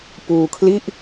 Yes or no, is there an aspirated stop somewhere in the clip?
yes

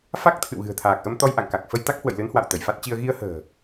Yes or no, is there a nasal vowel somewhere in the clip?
no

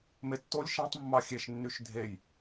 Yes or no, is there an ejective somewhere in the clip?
no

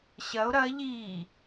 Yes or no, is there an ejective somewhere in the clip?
no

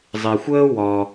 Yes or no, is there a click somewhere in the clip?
no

